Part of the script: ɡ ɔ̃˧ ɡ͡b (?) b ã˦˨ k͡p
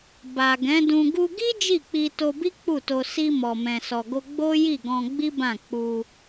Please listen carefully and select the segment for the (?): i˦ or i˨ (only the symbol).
i˦